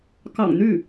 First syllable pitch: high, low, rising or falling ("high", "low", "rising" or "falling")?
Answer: low